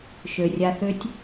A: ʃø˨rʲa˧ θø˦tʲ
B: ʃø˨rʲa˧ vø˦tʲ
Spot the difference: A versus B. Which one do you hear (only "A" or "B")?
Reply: A